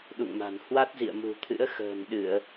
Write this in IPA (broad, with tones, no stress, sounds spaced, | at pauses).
ɗ ṵ˧˨ ŋ m a̤˨˩ n h w a˦˥ t̚ z ḭ˧˨ ə̯ m ṳ˨˩ t̪ʰ ɨ̰˧˥ ə̯ x ə̤ː˨˩ n ɗ ɨ˧˩˨ ə̯